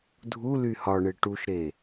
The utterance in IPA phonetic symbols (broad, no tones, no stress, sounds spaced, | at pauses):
dʱ u l y h ɒ ɳ e ʈ u ʃ ɾ e